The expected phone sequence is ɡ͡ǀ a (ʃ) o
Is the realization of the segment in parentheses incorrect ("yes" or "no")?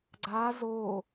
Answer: yes